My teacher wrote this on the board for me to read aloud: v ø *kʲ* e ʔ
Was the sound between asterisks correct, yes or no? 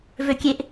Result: yes